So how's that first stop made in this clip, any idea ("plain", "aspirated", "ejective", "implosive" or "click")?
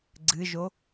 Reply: click